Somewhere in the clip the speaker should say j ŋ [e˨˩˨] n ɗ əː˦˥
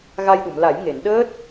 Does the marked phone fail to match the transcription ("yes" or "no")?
no